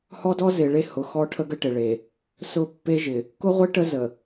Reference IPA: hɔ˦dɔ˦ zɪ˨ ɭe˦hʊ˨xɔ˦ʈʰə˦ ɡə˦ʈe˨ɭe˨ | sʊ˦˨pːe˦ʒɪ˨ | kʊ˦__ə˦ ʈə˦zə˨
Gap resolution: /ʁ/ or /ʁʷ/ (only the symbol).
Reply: ʁʷ